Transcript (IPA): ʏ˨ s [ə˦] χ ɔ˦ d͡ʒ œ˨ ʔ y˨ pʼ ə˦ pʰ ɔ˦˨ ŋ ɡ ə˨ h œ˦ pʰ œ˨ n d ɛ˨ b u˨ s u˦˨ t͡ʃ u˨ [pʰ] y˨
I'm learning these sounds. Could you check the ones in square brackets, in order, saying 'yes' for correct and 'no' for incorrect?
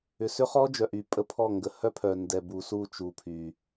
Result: no, yes

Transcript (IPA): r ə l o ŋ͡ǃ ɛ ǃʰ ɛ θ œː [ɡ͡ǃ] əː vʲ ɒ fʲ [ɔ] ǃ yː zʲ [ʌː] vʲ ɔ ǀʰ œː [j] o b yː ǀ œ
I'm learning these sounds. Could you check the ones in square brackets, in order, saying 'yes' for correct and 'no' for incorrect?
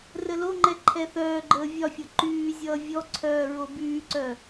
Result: yes, no, yes, no

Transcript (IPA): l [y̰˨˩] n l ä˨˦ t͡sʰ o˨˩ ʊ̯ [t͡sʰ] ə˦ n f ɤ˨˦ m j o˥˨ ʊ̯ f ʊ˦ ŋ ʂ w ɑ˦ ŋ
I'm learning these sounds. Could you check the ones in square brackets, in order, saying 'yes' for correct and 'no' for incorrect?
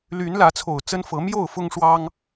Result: no, no

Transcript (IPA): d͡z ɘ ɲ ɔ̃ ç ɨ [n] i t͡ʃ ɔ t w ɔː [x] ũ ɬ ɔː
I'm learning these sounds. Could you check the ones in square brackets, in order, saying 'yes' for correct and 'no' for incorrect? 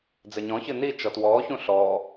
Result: yes, no

